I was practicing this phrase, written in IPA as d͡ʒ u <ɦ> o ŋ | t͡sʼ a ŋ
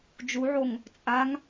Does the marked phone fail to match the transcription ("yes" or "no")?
yes